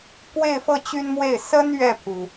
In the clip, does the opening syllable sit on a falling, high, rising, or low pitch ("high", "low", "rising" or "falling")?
falling